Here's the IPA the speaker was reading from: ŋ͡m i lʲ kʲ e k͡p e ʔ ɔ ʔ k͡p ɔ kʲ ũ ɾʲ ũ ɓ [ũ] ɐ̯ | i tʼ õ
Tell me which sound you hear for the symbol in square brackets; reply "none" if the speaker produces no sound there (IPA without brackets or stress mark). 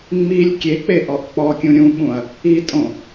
ũ